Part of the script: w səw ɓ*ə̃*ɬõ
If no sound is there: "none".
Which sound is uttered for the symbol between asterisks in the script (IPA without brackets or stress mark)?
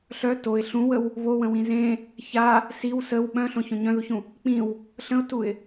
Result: œ̃